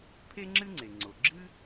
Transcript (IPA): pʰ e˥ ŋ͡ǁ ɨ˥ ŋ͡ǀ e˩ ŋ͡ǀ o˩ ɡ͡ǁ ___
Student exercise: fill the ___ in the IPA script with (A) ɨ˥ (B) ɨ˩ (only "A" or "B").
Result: A